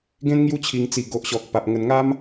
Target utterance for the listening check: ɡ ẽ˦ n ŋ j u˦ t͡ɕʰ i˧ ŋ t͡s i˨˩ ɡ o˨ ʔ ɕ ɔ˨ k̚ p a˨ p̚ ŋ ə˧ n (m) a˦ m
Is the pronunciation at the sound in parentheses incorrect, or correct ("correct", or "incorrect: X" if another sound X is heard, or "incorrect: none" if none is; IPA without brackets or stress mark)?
incorrect: ŋ